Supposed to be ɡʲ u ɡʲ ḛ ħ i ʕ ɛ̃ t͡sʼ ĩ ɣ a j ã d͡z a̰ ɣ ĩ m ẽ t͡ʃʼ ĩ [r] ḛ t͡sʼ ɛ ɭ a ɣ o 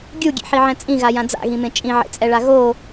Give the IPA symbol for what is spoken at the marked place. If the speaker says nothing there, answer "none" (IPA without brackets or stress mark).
ʕ